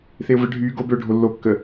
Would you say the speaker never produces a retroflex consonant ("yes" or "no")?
no